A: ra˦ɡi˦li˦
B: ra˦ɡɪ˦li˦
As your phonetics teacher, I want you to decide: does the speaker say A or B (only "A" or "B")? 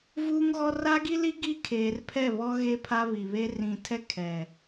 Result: A